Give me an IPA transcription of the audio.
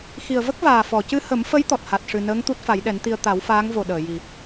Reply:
x i˨˩ ə̯ v ə˦˥ k̚ v aː˨˩ f ɔ˨˩˨ c ɨ˧ h ə˨˩˦ m f ə˧˥ j t̪ ɔ˨˩ t̚ h a˨˩ t̚ ʂ ɨ˨˩ n əː˧˥ ŋ t̪ u˦˥ t̚ f a˨˩˦ j ɗ ɛ˨˩˦ n t̪ i˧ ə̯ t̪ a˨˩˦ w f aː˧˥ ŋ v o˨˩ ɗ əː˨˩˨ j i˨˩

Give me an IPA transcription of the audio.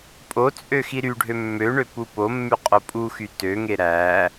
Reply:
pʼ o t͡sʼ ø x i ɾ y ɖʱ ø mː ø ɳ ø p u p o mː y qʼ o pʼ u x y t ø ŋ e ɾ æ

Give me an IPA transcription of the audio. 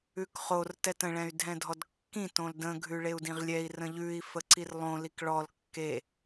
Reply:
ʉ k χ o r t ɛ t ə̃ ɭ ɛ̃ y̯ dʱ ɛ̃ dʱ ɔ d kː ĩ t õ l d ə̃ ɡʱ ʉ ɭ e u̯ d ĩ ʁ lʲ ɛ i̯ r ə̃ ʎ ʉ i̯ f ə ǀ i r lˠ õ l i k ɭ ɔ l kː e

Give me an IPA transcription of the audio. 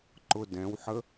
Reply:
ǃ ʊ d ɛ̃ w ħ ə

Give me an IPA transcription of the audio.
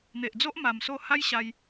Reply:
n̪ e˨ ʔ d͡z o˦ ʔ m a˧ m s o˥˧ h a˦ j ɕ a˧ j

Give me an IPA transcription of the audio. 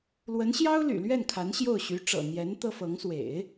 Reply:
l w ə˧˥ n ɕ j ɑ˥ ʊ̯ l y̰˨˩ l ɥ ɛ˥˩ n kʰ a˧˥ n ɕ j o˥˩ ʊ̯ ɕ y˧˥ ʈ͡ʂ ɤ̰˨˩ n̪ j ɛ˧˥ n t̪ ɤ˥ f ɤ˧˥ ŋ s w ḛ˨˩˦ ɪ̯

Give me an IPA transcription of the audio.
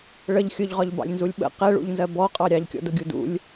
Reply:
ɭ ə ʎ xʲ ʊ ʎ ʁ ɒ ʎ b ɑ̰ lʲ n z u lʲ ɓ ə̰ q ɛ ɭ ṵ ʎ n z ɜ b ɔ qʼ ɑ ɾʲ ɑ ʎ kʲ ɔ̰ d ʊ ɡʲ u d ṵ lʲ

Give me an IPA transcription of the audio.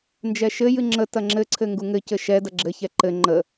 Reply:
n d͡ʒ ɛ ʃ ɘ j ɨ ŋ͡ǁ ə t ɐ ŋ͡ǁ ɘ ǀʰ ɘ ŋ ɡ u ŋ ɘ c ɘ ʃ ɛ d ɐ ɡ͡ǁ ɘ ç ɛ ǃ ɘ ŋ͡ǃ ə

